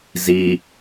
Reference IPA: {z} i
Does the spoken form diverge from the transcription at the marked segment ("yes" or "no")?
no